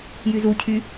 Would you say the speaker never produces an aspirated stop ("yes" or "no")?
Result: no